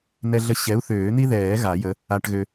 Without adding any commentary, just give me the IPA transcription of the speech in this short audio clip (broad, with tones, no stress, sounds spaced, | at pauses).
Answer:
n̪ ɛ˧ ɮ ə˧ ɕ ɛ˨˥ u̯ θ øː˨˩˦ n̪ i˥ ð ɛː˨˩˦ ɣ a˨˩˦ j ə˨˥ | a˧ ʈ ɣ ø˧